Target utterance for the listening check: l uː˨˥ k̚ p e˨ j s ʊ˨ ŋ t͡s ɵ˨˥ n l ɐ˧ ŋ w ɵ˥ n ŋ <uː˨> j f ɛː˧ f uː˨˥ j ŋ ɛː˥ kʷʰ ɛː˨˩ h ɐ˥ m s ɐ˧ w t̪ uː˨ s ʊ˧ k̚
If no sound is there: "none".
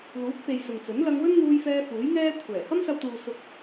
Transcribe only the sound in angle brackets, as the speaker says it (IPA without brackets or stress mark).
uː˧